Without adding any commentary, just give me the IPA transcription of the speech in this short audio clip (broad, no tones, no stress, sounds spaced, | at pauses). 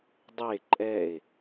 dˤ e ǃʼ ɛ e̯